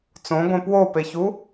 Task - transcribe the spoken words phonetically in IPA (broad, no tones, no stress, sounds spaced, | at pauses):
t͡s õ ɡʷ ẽ p w o p e ç u